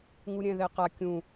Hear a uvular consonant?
yes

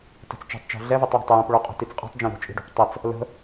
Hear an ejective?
yes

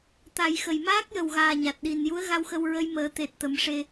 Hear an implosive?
yes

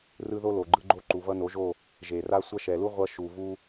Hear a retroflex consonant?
no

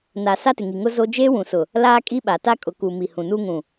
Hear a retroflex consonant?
no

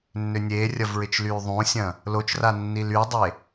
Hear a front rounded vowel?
yes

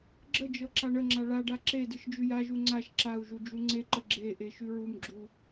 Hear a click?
yes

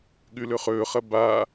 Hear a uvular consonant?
yes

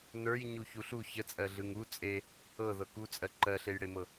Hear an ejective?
yes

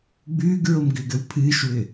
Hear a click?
no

